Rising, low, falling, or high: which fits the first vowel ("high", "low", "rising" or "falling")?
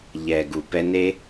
low